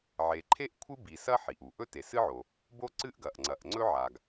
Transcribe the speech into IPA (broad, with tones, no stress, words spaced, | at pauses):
ʕe˩ǃʰe˥ʔ kʷʰɨ˥bi˩ sɐ˥ ħi˩ʔu˩ ʔɵ˥te˩sɨ˥ʕo˩ | bo˥ǀɨ˥ʔɡɐ˩ʔ ŋ͡ǀɐ˩ʔŋ͡ǀɵ˥ʕa˩ɡ